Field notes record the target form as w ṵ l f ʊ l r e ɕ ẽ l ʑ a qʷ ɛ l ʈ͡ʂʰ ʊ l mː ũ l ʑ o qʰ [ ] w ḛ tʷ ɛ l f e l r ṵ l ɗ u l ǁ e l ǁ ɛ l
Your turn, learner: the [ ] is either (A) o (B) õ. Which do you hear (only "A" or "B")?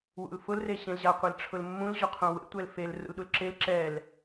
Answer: B